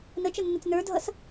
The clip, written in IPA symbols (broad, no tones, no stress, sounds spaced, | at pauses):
n ə t͡ʃ ə nː ə t͡s n ə˞ dʱ ʌ s